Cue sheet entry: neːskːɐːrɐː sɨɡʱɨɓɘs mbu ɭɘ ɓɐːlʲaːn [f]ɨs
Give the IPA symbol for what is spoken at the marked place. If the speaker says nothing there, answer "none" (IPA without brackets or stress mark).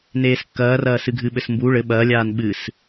ɓ